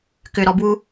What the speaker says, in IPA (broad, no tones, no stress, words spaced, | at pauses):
kʏɾɔbwu